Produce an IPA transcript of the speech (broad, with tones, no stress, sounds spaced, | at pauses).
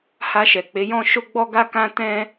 h a˧ ʃ ɛ˨ k͡p e˨˦ j ɔ̃˦ ʃ o˦ ɡ͡b ɔ˦ ɡ a˦ k ã˦ t ɛ̃˦